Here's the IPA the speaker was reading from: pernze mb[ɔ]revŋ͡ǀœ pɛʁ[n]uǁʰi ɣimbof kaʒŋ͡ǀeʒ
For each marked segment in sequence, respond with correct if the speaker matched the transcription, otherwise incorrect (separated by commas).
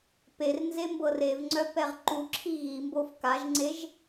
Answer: incorrect, incorrect